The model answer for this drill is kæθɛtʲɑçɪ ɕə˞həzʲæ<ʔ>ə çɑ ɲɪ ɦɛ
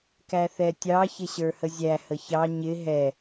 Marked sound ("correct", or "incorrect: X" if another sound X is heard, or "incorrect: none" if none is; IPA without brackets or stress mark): incorrect: h